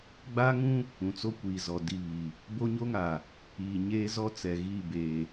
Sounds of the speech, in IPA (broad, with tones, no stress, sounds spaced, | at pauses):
ɡ͡b a˦ ŋ ũ˦ | ũ˨ t͡s o˦ kʷ iː˨ z ɔ˨ d i˦˨ β i˨ | b o˦ ɲ o˦ ŋ a˨ | iː˨ ɲ eː˦ z ɔ˦ t͡s ɛ˨ ɣ iː˦˨ b eː˨